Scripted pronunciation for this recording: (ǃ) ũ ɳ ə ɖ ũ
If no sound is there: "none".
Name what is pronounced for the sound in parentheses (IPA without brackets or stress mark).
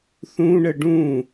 θ